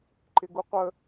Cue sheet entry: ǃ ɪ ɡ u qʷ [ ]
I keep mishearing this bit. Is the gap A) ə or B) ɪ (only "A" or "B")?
A